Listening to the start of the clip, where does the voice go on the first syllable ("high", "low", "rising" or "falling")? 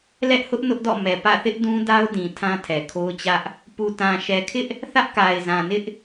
high